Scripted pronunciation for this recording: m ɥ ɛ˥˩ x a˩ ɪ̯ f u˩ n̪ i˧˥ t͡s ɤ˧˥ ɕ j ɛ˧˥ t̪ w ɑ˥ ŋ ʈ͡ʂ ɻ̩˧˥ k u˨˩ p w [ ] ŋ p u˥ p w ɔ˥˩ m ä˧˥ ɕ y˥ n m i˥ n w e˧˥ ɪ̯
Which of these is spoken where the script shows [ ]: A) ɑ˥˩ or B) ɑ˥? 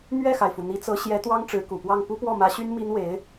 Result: A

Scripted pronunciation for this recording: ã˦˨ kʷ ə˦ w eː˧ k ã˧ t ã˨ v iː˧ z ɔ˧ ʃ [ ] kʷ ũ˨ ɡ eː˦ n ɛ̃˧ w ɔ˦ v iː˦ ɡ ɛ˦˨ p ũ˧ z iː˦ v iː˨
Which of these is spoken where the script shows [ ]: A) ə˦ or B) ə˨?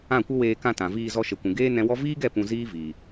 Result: B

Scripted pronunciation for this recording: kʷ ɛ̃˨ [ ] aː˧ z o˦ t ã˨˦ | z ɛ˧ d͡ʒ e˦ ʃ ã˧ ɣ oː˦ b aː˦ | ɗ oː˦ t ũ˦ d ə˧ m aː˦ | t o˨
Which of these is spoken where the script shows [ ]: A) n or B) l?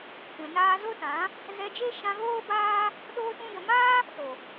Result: A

